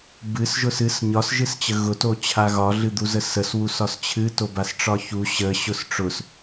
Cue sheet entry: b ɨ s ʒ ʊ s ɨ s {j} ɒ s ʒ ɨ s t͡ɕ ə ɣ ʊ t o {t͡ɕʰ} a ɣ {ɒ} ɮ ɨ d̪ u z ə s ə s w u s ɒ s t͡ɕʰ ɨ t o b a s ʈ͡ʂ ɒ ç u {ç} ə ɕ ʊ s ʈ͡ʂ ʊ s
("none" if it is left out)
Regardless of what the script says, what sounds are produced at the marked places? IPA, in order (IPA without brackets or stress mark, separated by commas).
ɲ, t͡ɕʰ, ɒ, ɕ